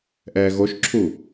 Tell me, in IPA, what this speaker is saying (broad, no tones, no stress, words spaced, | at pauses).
ʔɛ ɣoʃǁʰu